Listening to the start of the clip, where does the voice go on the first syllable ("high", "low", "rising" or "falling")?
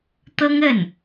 high